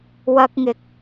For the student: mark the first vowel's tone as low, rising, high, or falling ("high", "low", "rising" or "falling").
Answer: high